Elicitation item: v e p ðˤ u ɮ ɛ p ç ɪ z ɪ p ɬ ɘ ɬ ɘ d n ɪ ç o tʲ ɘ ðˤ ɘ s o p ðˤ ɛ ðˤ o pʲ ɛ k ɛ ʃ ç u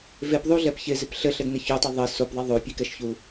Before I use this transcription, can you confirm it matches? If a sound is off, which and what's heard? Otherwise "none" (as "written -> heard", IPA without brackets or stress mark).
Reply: tʲ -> tˤ